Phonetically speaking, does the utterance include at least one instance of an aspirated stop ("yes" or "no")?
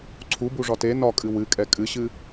yes